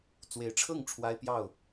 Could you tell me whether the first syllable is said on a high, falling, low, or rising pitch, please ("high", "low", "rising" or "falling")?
rising